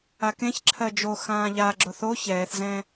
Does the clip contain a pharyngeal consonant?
no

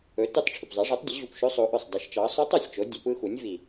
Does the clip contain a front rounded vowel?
no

